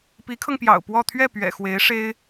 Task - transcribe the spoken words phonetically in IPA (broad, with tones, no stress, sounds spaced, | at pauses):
p i˧˥ kʰ ɤ˧ ŋ p j ɑ̰˨˩ ʊ̯ p w ɔ˥˧ t̪ʰ ɥ ɛ˥˩ p ɥ ɛ̰˨˩ x w e˧˥ ɪ̯ ʂ e˥ ɪ̯